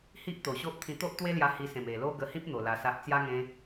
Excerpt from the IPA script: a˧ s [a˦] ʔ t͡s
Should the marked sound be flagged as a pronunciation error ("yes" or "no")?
no